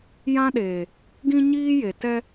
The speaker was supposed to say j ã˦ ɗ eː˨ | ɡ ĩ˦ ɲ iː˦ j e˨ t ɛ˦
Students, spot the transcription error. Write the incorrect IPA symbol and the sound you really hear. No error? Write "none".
none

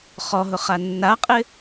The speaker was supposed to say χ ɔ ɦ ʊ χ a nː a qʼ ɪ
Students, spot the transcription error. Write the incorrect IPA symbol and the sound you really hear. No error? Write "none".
none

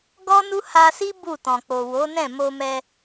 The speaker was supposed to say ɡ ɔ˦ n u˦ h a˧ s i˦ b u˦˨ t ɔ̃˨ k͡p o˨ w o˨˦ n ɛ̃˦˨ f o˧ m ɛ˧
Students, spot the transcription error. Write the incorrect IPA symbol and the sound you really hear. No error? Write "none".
f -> m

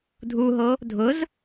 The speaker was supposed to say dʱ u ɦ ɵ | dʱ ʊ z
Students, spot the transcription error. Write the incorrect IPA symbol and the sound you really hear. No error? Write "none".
ɵ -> o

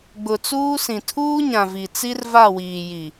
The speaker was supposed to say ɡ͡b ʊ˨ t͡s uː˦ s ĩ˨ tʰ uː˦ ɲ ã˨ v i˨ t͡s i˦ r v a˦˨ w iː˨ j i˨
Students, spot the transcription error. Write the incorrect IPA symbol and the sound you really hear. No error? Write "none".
none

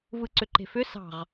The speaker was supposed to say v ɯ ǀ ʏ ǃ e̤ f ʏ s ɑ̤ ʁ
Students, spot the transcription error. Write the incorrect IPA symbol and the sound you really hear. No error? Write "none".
none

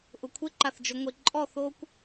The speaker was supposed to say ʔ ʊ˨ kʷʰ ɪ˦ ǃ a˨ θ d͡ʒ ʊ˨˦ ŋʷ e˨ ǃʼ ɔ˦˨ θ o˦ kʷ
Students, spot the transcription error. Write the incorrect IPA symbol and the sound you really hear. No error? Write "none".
none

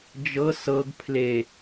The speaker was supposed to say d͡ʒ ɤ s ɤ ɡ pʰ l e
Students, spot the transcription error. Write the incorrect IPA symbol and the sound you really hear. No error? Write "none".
none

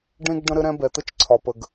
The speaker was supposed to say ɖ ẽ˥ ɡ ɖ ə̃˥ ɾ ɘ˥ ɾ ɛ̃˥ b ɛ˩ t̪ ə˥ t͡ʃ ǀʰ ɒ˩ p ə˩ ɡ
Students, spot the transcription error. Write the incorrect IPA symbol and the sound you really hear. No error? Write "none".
none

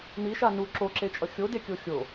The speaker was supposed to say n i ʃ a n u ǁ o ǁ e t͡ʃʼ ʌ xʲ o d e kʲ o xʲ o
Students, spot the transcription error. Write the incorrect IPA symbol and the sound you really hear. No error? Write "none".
none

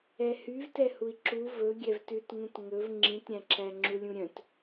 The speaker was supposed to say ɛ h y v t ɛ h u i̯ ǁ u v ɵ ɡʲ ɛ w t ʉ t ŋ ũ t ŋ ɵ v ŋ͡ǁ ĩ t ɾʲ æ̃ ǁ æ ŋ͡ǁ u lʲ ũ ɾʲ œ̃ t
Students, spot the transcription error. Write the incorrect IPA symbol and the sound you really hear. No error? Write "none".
w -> v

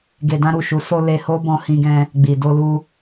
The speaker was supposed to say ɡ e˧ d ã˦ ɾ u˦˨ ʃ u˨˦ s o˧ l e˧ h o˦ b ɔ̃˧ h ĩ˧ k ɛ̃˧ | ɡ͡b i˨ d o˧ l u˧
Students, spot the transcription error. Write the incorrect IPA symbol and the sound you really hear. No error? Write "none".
k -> ɡ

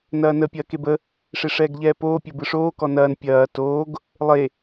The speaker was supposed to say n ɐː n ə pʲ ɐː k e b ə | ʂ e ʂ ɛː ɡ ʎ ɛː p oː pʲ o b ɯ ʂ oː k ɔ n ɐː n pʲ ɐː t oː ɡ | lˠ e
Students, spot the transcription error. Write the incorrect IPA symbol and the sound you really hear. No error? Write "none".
none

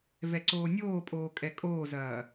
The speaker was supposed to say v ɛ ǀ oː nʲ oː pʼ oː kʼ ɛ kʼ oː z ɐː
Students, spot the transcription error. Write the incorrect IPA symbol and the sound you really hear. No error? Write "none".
none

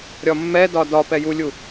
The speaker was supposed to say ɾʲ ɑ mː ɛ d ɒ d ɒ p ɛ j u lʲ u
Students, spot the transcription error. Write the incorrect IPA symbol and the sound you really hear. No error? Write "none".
ɑ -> ɒ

